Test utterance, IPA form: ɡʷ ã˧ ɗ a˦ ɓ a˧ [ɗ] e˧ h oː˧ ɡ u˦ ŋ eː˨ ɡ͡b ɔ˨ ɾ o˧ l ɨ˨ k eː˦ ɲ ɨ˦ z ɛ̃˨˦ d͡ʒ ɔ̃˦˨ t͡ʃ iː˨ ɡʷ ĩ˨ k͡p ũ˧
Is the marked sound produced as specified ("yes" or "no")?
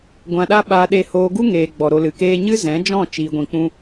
yes